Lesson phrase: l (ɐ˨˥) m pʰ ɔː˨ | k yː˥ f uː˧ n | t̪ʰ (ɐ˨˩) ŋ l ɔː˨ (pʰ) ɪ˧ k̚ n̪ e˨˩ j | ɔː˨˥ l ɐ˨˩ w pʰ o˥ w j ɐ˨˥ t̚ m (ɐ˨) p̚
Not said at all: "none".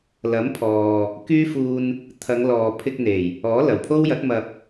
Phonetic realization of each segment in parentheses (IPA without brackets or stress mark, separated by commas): ɐ˨˥, ɐ˨˧, pʰ, ɐ˨